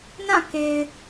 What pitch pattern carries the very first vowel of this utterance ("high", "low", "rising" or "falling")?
falling